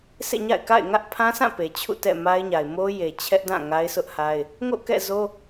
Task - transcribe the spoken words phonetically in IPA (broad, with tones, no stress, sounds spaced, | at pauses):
sʰ ḛ˦˨ ɲ a̰˦˨ ɪ̯ k a̰˦˨ ɪ̯ ŋ ä˦ ʔ pʰ ã˦ s ã˦˨ p e˨ t͡ɕʰ ṵ˦˨ t ɛ̰˦˨ m a˦ ɪ̯ ɲ a˨ ɪ̯ m o˦ j e˨ t͡ɕʰ ɛ˦ ʔ d ã˦˨ ŋ a˦ ɪ̯ s ʊ˦ ʔ h a˦ ɪ̯ | ŋ o̰˦˨ k ɛ̰˦˨ z o˦